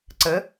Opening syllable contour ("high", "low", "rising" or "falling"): rising